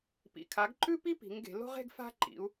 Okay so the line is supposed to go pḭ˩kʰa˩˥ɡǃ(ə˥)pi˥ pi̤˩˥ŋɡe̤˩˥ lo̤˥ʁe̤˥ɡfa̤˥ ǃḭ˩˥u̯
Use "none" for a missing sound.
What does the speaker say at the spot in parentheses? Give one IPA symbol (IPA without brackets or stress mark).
ʉ˥